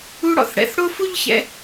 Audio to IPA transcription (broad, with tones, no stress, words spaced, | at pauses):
u˥ɽɔ̰˩θ ɽɛ̰˧θ ɽo˥fu˥ʎçɛ̰˧